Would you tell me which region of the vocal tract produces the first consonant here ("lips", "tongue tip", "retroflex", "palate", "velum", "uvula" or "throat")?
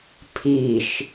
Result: lips